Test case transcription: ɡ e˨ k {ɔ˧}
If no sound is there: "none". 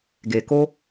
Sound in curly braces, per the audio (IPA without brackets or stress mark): o˧